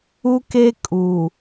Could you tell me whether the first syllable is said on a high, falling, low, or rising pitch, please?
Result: high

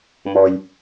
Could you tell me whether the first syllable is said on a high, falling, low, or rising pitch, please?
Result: low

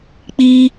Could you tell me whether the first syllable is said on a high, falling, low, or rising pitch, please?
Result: high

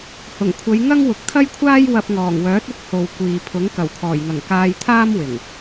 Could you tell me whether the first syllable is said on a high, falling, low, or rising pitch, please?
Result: low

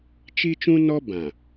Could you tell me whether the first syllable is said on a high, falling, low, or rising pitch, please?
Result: high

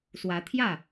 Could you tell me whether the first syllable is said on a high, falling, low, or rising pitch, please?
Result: rising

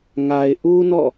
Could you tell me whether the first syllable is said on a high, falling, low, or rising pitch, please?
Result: low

